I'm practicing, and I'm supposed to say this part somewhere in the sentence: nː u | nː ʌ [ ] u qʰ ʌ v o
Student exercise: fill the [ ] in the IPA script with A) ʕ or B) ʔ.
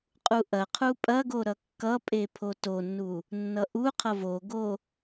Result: B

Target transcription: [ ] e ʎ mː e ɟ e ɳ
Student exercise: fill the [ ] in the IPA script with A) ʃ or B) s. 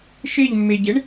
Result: A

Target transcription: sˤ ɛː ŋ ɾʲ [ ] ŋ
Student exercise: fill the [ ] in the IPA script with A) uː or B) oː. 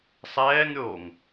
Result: B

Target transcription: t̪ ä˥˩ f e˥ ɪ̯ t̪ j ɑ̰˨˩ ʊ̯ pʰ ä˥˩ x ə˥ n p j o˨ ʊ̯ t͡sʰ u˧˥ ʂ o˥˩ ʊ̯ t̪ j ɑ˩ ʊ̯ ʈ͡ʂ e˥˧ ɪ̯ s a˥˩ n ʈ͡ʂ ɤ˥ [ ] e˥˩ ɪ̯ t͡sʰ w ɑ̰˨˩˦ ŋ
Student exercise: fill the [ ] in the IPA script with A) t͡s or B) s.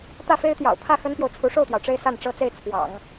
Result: A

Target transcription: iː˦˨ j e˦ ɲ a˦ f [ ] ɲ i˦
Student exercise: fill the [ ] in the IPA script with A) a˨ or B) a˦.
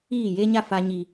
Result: B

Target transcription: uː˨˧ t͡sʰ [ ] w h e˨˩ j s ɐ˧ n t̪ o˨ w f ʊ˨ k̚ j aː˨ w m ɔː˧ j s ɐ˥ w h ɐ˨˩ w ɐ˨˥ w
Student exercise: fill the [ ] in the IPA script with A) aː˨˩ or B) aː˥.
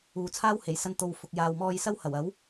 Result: B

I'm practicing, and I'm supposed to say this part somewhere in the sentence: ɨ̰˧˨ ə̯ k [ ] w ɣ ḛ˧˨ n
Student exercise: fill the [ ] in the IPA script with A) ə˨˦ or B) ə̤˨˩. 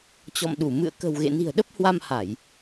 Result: B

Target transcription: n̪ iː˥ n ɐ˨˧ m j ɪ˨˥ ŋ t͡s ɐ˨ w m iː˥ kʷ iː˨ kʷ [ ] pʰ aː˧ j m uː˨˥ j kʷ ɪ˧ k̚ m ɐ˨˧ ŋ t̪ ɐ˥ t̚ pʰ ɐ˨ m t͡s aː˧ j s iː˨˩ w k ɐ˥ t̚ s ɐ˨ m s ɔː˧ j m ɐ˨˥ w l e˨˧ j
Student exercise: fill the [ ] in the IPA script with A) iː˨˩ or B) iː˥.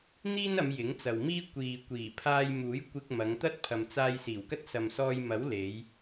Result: A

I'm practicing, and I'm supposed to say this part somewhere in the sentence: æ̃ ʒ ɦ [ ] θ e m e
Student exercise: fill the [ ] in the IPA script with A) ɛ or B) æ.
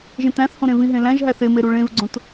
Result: B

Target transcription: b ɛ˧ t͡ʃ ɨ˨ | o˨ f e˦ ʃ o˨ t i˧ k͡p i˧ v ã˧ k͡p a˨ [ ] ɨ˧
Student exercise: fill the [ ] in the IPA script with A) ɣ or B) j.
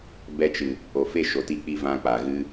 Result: A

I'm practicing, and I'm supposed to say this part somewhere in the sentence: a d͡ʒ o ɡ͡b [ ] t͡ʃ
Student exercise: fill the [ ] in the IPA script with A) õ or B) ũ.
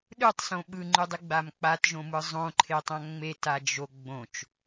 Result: A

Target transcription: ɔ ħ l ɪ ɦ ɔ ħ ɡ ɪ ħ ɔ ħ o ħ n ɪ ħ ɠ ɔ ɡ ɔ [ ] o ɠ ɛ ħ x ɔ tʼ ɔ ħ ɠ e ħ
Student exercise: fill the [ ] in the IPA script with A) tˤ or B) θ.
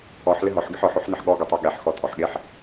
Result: A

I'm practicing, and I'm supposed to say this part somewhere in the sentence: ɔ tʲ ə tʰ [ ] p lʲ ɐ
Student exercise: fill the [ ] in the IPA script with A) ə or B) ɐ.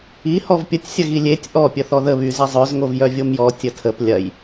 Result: A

